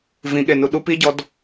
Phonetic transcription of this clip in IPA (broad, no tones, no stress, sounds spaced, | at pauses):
v ĩ ɠ e n u ɗ u p i ɟ ɔ d